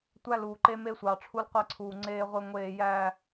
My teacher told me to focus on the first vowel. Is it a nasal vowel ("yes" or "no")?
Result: no